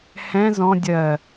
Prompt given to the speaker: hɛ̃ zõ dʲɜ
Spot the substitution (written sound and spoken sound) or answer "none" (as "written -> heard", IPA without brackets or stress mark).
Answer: õ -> ɔ̃